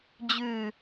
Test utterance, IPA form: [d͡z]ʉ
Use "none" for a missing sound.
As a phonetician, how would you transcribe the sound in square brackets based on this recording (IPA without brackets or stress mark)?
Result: d͡ʑ